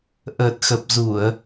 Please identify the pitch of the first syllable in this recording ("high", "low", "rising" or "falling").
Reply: low